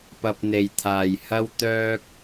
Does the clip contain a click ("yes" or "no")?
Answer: no